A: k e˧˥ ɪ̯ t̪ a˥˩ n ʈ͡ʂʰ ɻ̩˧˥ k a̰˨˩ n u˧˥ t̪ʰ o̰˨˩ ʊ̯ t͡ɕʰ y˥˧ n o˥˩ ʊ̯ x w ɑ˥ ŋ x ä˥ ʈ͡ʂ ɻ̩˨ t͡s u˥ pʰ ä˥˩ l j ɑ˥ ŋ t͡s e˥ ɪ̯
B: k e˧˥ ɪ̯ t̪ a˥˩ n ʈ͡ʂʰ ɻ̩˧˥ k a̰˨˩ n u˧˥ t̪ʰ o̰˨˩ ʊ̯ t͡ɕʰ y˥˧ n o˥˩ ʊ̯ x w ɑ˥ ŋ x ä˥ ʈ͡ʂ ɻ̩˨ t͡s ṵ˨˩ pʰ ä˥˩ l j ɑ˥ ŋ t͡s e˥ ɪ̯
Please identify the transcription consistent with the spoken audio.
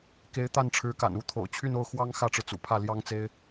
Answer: B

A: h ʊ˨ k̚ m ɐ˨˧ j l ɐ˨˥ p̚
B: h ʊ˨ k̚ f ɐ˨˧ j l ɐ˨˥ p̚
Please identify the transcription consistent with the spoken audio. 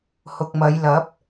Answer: A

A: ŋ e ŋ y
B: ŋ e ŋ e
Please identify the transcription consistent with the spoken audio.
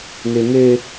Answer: B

